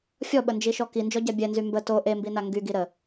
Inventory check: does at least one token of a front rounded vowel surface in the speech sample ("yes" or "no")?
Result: yes